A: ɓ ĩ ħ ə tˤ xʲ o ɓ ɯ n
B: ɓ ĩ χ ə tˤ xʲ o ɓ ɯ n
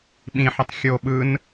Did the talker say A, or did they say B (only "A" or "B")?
A